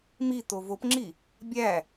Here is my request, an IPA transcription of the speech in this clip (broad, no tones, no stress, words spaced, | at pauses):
mi tovopŋ͡ǁi | bʲæ